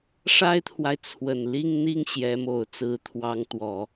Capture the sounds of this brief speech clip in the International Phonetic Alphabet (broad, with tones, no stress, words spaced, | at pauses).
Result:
ʂa˥ɪ̯t̪ʰwa˨ɪ̯ t͡sʰwə˨˩nli˥˧ŋn̪i˥˩ŋ ɕjɛ˧˥mo˨˩ʊ̯ t͡sɹ̩˧˥t̪ʰwɑ˧˥ŋ t̪wɔ˨˩˦